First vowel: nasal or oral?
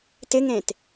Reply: oral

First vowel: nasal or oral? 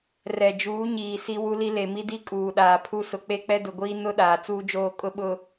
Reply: oral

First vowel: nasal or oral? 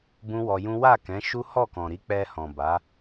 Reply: nasal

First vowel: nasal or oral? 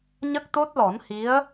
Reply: oral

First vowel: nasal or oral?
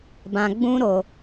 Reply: nasal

